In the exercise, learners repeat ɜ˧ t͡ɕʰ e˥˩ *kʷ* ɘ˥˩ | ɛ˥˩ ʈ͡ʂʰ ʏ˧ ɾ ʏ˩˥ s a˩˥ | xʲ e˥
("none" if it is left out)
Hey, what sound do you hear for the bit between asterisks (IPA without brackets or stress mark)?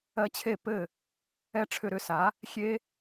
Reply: p